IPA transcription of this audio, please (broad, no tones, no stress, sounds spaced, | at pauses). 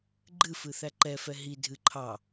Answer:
ɡ͡ǃ ɨ f ɨ θ æ ǃ ɛ f ɛ ɦ i dʱ ɨ ǃʰ ɑ